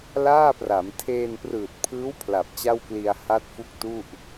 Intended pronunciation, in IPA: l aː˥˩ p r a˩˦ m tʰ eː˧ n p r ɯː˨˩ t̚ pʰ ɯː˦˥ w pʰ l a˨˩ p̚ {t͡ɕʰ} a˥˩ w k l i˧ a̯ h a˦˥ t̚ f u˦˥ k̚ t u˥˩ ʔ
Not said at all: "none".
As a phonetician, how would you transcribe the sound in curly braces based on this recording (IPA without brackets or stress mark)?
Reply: t͡ɕ